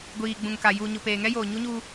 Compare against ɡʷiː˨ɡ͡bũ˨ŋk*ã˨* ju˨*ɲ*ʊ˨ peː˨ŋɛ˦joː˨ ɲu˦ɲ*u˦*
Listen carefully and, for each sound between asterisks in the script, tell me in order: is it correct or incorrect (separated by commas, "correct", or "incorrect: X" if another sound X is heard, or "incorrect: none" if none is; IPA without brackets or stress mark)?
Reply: incorrect: a˨, correct, correct